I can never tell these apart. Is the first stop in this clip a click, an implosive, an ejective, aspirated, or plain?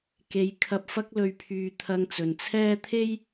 plain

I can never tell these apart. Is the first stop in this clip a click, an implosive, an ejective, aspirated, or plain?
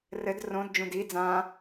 plain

